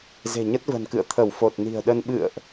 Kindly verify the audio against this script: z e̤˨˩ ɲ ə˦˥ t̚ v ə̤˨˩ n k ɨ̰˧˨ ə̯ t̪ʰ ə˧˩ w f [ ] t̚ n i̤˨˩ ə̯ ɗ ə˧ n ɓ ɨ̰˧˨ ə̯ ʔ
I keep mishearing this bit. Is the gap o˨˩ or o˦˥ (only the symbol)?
o˨˩